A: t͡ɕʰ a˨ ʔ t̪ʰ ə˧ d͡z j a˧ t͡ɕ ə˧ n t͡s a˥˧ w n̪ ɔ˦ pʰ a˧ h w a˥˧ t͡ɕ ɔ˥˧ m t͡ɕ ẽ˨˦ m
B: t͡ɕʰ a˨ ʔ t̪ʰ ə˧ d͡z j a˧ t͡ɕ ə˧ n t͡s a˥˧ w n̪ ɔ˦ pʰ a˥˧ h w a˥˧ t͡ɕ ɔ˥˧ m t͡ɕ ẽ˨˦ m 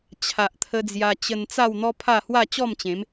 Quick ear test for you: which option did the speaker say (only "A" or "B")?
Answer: B